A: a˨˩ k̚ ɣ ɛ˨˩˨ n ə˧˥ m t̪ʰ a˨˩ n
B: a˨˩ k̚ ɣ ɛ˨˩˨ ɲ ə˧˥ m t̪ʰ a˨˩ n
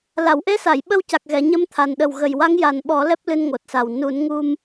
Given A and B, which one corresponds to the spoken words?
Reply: B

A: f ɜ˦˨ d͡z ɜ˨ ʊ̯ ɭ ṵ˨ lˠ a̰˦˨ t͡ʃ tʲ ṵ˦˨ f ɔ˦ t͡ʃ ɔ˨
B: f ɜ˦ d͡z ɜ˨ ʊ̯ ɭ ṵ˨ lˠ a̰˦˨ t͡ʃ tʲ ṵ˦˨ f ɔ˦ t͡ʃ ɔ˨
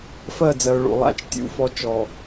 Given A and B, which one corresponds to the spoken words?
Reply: A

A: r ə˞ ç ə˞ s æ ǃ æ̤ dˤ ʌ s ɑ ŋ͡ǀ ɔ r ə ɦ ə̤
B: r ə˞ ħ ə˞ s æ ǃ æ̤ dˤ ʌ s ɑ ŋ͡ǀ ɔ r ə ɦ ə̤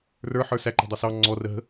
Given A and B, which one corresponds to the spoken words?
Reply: B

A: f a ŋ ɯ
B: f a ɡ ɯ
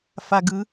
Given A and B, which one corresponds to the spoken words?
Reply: B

